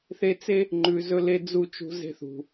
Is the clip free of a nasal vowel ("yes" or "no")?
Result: yes